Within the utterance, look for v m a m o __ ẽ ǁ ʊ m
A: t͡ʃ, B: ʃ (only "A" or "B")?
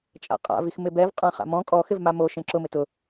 B